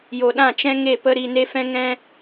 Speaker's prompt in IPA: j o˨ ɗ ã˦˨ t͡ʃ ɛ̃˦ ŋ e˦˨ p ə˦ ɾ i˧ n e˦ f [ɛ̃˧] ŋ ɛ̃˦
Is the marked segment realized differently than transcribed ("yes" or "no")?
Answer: yes